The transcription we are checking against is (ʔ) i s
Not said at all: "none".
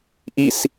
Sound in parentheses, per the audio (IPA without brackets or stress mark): ʔ